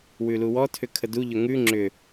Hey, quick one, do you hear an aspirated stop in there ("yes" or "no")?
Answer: yes